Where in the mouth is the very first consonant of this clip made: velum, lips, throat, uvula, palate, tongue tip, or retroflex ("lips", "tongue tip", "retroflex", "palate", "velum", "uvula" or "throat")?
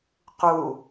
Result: uvula